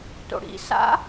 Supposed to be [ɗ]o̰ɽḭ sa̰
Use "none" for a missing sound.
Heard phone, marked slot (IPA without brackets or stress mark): t